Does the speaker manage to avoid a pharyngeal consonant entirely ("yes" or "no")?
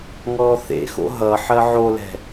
no